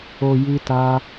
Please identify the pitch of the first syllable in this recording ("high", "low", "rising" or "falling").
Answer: low